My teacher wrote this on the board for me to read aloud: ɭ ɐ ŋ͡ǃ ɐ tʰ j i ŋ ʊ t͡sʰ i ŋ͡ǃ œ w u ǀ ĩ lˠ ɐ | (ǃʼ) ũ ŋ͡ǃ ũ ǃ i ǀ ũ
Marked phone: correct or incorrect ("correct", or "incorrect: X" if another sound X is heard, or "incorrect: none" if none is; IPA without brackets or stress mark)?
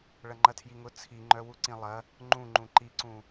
incorrect: ŋ͡ǃ